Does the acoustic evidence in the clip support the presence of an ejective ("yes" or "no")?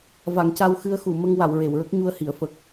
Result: no